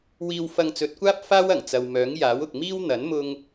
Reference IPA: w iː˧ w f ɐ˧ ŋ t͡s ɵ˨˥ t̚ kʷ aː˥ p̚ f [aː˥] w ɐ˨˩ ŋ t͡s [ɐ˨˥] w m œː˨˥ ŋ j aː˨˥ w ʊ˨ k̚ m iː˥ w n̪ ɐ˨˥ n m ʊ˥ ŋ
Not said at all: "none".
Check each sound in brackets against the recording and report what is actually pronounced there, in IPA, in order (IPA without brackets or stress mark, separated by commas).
aː˥, ɐ˨